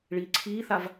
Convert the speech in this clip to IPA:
ɭ iː ǀʰ iː θ a v

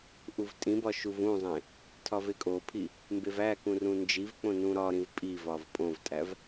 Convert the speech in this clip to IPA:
ʔ u v tʼ ĩ b ɒ ʃ u v ũ zˤ ẽ | tʰ ɒ v e kʼ o pʰ i | m b e v æ k ũ r ũ n d͡ʒ i v k͡p õ n ũ ɾ ɒ ɾ ĩ v pʼ i v ɒ v pʼ õ v tʼ æ v

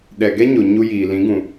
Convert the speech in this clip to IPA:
ɗ ɛ˨ ɡ ɛ˦ ɲ o˨ ɲ u˧ j iː˨ l ĩ˨˦ ɡ ũ˨

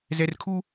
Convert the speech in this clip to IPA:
z ɛ˨ r kʰ u˦

